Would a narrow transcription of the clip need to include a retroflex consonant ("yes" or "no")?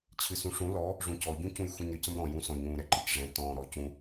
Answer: yes